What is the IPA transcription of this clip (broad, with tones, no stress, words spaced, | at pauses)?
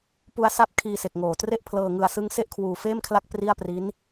pu˦˥a̯ sa˦˥p̚ kʰiː˧se˨˩k̚ŋoː˨˩tre˥˩ʔ pʰlɤː˧ŋɯ˧a̯sɯ˦˥ŋ se˥˩ʔkʰwuː˧feː˥˩mkʰla˥˩k̚ pri˥˩a̯pri˦˥n